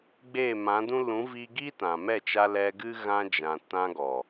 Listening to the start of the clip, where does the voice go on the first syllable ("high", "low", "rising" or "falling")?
falling